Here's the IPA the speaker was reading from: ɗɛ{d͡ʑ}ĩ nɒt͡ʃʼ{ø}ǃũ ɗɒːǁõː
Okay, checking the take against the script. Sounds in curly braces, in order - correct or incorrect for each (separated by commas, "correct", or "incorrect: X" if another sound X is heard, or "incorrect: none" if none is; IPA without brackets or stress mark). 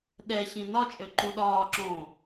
incorrect: ɕ, correct